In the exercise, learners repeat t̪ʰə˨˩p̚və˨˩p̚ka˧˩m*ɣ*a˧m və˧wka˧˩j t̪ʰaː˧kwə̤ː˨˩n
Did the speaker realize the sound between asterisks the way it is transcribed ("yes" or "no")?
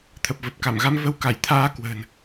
yes